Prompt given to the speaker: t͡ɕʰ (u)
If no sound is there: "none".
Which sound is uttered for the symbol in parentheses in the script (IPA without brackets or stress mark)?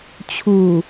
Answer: u